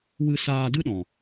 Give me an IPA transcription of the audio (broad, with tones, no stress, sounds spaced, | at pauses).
w ɨ˧ s aː˧ d ɨ˦ ɗ ɔ̃˨